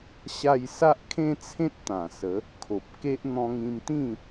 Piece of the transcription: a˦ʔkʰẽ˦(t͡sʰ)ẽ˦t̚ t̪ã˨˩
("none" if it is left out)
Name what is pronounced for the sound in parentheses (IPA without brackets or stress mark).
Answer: t͡sʰ